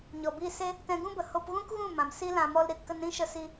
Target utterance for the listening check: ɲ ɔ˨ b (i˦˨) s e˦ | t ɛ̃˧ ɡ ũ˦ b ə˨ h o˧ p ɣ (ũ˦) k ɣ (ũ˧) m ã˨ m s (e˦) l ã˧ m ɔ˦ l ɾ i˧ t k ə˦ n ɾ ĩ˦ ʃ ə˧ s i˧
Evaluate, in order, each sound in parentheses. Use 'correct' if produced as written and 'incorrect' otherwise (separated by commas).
correct, correct, incorrect, incorrect